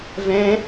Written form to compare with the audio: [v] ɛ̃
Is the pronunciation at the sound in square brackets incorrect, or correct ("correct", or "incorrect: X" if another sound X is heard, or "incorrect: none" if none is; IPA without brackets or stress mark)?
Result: correct